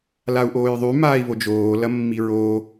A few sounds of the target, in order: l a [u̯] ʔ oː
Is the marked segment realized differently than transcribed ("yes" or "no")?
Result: no